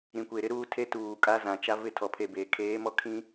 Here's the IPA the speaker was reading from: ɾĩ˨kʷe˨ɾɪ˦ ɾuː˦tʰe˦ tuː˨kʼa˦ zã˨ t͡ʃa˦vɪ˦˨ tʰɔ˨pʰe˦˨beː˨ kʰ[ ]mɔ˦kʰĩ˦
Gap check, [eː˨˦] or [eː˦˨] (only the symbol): eː˨˦